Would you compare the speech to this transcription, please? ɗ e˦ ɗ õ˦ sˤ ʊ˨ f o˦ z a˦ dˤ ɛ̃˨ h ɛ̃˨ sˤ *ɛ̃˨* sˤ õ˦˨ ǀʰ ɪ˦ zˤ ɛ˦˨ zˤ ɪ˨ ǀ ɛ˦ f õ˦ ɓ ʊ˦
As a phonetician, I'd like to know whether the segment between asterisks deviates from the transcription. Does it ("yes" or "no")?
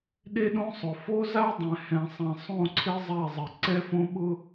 no